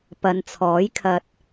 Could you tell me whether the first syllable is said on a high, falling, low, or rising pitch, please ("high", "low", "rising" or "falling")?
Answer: low